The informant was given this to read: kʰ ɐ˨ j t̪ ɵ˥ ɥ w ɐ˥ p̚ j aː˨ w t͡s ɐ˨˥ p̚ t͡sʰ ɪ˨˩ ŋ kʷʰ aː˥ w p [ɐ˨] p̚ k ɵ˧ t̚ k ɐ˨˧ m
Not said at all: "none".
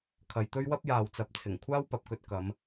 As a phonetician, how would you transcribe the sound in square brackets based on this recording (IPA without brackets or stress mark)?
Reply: ɐ˨